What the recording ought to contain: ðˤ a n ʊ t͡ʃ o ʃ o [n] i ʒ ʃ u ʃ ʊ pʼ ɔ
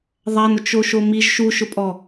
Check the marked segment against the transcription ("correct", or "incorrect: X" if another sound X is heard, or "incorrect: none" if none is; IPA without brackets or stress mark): incorrect: m